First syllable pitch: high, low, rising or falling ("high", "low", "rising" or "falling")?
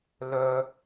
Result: low